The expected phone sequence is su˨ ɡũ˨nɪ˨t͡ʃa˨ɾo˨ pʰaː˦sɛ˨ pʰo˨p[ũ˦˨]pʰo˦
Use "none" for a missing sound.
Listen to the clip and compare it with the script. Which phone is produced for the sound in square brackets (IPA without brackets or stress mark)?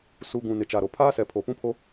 ũ˦